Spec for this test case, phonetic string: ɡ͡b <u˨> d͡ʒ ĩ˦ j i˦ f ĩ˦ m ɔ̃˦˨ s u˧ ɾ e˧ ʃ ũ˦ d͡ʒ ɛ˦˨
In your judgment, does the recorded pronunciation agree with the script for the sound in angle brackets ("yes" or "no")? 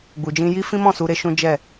no